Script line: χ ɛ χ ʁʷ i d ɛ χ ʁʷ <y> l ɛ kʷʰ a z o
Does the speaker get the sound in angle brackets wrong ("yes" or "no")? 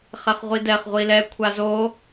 yes